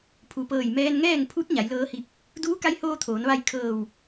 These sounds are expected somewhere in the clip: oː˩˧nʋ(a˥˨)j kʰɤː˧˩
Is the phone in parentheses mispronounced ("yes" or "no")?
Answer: no